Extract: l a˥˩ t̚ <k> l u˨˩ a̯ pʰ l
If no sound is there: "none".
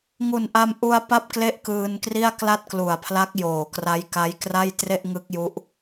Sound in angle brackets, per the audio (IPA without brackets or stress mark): k